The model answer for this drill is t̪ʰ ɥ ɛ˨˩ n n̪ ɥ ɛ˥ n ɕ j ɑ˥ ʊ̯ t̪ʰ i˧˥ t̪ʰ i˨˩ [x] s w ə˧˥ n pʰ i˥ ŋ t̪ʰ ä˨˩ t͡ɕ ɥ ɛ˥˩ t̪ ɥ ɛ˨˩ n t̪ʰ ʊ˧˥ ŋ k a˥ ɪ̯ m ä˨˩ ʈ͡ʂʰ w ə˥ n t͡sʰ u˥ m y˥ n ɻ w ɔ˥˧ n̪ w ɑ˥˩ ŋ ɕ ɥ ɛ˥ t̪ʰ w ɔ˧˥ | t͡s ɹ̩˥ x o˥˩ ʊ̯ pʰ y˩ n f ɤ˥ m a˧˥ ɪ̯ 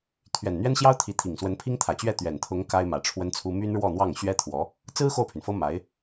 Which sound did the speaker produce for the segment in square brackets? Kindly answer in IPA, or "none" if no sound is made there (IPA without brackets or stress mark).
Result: ŋ